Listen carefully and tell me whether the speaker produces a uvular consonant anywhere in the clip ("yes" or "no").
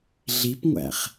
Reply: yes